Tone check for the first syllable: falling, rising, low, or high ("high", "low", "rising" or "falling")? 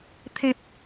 high